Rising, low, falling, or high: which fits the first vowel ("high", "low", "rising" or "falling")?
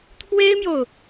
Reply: high